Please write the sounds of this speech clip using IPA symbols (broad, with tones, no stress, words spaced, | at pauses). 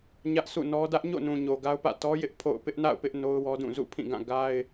ɲä˦ʔsʰṵ˦˨nɔ˦ dä˦ʔɲo̰˦˨nũ˨ɲo˨ ɡa˦ʊ̯pä̰˦˨ tɔ˦jɪ˦ʔ pʰo̰˦˨ʊ̯ pɪ˦ʔna̰˦˨ʊ̯pɪ˦ʔ no˦ʊ̯wɔ˦dũ˦˨ zṵ˦˨pʰĩ˦˨ɡã˦˨ ɡa˦ɪ̯